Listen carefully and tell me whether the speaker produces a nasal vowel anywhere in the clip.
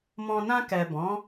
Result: yes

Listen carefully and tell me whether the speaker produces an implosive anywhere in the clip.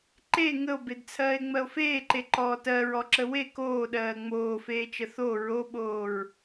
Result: yes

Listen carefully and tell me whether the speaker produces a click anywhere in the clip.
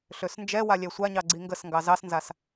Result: yes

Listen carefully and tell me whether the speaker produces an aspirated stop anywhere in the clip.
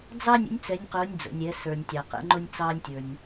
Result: no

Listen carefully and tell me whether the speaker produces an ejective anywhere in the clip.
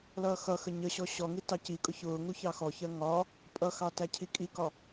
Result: yes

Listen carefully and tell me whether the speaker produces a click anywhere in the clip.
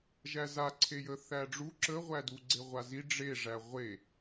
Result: yes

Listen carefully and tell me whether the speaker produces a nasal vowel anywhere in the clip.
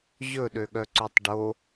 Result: no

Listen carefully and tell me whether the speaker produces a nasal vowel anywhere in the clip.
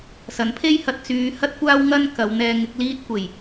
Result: no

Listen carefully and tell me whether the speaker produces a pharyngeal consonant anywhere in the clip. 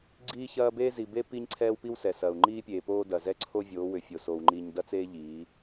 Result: no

